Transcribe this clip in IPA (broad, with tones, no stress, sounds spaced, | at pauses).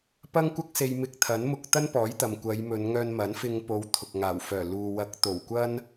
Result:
p ɐ˥ ŋ kʷ ɐ˥ k̚ s e˧ j m ɪ˧ k̚ t̪ʰ ɐ˨˥ n m ʊ˧ k̚ t̪ ɐ˥ n p ɔː˨˥ j t̪ ɐ˨ m kʷ ɐ˨˧ j m ɵ˨˧ n ŋ œː˧ n m ɐ˨˥ n f ɪ˧ ŋ p o˨˧ w t̪ʰ ʊ˨ k̚ ŋ aː˨˩ w f œː˨˩ l uː˨ w ɐ˨˥ k̚ t̪ o˨˩ w kʷ ɐ˥ n